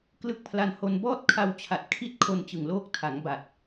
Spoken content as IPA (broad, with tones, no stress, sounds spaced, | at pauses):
k l ɯ˦˥ k̚ pʰ l a˧ n h o˧ n b ɔː˥˩ t̚ kʰ a˧ w t͡ɕʰ a˨˩ t̚ kʰ i˦˥ t̚ kʰ o˧ n t͡ɕ ɯ˨˩ ŋ l oː˦˥ k̚ tʰ a˩˦ ŋ b a˨˩ t̚